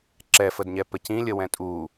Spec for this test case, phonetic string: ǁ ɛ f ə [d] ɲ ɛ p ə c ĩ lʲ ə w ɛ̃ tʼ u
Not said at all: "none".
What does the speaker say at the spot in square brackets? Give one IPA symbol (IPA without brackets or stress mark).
d